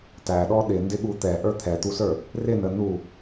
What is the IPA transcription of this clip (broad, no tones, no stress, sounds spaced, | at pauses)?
t æ ɗ ɔ ɗ ɪ n d ɪ ɠ u t̪ ɛ ʔ ə˞ t̪ʰ ɛ t̪ u s ə˞ | r ɪ n ə n u